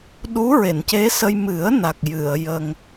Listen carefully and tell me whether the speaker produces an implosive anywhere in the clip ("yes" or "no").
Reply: yes